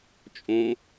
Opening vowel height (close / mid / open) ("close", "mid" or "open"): mid